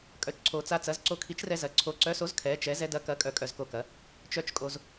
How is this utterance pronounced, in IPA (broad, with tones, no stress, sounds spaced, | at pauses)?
kʼ œ˨˥ t͡ʃ ǀʰ o˧ t͡s a˧ t͡s ɐ˨˥ z ǀ o˧ kʰ i˨˥ t͡ʃ r ɛ˧ z ɐ˨˥ ǀʰ o˧ ǀ œ˨˥ s o˨˥ z kʰ ɛ˨˥ t͡ʃ ɛ˨˥ z ɛ˧ d ɐ˨˥ k ɐ˨˥ kʼ œ˧ kʼ œ˧ z k o˧ k ɐ˨˥ | t͡ʃ œ˧ t͡ʃ kʼ o˧ z